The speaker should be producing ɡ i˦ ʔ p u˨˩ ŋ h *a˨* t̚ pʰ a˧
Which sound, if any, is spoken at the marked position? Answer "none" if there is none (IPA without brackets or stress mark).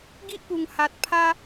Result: a˨